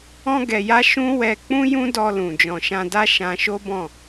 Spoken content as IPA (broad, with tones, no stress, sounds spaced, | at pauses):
ɔ̃˧ ɡ ɛ˨ j a˧ ʃ ũ˦ w ɛ˧ k͡p ũ˦ j ũ˦ d ɔ˧ l ũ˨ d͡ʒ ɔ̃˨ ʃ ã˧ d a˦ ʃ ã˧ ʃ o˦ b ɔ̃˦˨